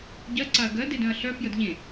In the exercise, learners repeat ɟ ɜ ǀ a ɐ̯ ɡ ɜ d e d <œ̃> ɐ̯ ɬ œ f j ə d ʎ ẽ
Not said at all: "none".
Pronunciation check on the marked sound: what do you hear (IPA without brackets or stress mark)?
œ̃